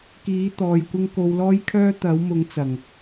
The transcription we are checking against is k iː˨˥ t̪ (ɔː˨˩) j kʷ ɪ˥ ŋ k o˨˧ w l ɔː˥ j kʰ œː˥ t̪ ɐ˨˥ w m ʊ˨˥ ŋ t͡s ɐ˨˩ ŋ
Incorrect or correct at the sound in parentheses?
incorrect: ɔː˨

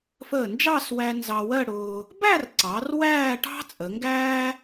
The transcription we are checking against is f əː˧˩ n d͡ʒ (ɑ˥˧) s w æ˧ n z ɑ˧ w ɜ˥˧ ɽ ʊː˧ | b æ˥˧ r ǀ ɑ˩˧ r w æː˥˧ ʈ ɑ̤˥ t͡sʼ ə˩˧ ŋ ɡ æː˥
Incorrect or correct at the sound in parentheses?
correct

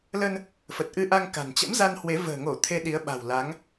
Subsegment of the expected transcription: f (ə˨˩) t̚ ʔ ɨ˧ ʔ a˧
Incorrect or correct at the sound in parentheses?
correct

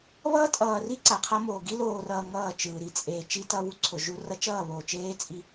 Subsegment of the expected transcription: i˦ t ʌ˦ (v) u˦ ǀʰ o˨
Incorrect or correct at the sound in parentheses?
incorrect: β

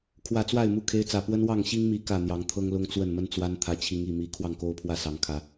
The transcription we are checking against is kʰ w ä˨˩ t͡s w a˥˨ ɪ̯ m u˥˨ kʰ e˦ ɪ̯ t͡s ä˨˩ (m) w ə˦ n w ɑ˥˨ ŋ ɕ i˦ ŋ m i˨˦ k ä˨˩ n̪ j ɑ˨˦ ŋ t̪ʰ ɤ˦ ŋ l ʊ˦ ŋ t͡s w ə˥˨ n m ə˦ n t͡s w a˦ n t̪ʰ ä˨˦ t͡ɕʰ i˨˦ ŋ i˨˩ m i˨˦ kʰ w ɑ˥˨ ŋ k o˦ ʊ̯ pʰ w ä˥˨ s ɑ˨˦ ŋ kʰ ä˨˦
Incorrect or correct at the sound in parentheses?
incorrect: p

